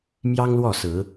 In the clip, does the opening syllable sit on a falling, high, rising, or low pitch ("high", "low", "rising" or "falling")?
high